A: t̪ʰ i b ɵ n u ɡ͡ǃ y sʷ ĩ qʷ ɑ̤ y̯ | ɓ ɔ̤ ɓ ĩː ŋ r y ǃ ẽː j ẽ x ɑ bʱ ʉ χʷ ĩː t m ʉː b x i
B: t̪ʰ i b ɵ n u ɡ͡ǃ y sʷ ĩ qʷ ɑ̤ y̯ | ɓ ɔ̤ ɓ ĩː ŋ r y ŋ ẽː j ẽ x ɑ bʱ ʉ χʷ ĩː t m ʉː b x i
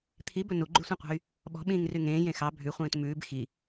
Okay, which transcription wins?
B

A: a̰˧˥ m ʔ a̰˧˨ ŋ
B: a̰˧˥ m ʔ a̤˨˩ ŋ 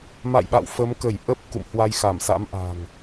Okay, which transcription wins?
B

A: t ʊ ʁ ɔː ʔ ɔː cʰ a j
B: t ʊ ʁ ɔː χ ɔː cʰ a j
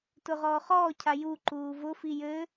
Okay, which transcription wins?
B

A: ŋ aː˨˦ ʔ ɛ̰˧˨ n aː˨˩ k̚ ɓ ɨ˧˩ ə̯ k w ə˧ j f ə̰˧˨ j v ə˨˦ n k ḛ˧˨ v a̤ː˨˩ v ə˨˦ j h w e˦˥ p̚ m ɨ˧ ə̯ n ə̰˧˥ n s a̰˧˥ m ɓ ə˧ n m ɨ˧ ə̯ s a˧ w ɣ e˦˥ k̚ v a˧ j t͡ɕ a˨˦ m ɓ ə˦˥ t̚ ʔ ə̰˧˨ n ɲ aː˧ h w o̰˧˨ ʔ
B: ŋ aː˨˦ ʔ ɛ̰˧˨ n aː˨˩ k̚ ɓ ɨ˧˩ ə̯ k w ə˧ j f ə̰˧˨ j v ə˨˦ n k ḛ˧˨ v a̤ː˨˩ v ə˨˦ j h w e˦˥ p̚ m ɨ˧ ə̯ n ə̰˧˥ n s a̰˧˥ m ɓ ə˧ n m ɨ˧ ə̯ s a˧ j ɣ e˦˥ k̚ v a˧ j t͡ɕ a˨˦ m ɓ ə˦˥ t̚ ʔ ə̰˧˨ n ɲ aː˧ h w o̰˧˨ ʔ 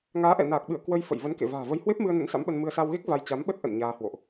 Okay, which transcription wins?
A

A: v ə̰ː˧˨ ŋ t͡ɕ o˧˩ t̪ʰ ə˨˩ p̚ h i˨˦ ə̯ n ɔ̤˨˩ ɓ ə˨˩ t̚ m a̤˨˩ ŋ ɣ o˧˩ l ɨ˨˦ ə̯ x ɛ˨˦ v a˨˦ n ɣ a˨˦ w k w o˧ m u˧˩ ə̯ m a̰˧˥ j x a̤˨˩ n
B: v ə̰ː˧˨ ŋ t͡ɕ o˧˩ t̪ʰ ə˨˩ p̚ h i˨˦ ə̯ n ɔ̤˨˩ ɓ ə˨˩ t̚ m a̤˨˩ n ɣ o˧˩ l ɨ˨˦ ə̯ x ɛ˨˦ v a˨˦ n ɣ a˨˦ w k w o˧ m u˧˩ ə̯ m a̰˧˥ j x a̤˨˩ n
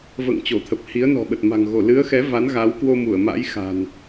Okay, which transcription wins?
A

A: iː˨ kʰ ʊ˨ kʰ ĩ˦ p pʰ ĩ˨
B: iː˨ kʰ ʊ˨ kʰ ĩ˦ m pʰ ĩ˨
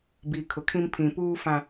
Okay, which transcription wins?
B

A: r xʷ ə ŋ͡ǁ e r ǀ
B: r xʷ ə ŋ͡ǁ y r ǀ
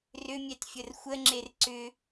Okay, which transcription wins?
A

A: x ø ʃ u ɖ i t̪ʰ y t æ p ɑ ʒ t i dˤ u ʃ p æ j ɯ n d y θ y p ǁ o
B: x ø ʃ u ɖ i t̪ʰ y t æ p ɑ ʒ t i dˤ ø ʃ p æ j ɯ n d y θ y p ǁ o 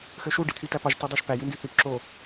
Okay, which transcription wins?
A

